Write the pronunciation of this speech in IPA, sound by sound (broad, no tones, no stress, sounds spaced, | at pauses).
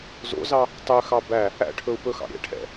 z o̰ z ɑ | tˤ ø x ɑ b æ | æ̰ ʈʰ ɵ u̯ p ɵ x ɑ̰ ɾʲ ɛ̰ ʈʰ ɛ̰